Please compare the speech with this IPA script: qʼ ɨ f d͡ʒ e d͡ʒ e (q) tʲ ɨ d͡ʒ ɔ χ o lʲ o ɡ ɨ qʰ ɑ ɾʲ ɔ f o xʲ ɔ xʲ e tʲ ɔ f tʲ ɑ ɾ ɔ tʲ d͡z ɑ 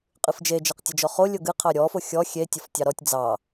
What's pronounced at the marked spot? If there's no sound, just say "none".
q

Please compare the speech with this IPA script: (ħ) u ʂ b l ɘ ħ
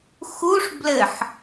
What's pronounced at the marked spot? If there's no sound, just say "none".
x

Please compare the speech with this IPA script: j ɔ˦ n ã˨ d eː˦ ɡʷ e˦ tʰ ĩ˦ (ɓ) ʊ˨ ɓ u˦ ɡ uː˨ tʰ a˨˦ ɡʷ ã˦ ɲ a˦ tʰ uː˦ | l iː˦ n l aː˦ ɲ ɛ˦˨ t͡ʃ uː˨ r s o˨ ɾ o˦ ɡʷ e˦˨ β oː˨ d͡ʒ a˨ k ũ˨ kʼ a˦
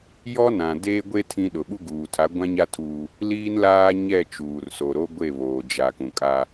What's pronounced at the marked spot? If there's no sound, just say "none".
ɗ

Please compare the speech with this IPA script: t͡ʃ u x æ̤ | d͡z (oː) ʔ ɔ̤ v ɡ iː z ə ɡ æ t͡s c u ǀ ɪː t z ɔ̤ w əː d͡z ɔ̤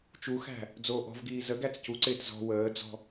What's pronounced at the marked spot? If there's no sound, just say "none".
oː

